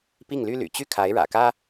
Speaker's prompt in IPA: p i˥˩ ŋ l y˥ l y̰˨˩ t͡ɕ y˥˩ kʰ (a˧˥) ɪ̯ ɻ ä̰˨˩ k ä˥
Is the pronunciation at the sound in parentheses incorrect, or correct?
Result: correct